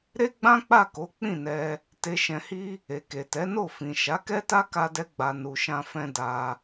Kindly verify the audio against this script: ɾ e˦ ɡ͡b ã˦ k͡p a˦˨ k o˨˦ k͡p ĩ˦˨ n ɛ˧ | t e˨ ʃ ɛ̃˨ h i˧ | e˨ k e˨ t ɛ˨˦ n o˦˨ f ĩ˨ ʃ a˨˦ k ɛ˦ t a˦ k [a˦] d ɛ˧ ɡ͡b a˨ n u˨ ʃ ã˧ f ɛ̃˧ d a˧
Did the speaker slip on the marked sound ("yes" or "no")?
yes